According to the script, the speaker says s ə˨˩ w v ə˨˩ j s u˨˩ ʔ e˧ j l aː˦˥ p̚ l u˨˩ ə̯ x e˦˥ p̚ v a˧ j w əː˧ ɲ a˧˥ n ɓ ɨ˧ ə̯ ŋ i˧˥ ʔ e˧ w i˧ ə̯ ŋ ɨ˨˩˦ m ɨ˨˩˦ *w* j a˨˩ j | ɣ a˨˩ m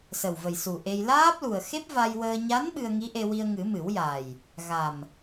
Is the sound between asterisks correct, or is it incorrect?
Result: correct